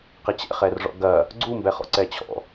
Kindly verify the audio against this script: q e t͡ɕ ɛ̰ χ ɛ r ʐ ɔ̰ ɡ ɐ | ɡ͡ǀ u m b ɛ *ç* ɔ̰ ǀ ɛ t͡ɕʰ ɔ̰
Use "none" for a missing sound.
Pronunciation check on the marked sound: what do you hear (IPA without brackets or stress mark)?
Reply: χ